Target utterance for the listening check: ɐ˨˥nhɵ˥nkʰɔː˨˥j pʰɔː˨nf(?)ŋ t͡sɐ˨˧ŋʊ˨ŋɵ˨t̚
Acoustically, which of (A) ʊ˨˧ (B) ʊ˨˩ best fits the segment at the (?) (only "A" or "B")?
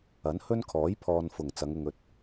B